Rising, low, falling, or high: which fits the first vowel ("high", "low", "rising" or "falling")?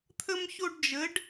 high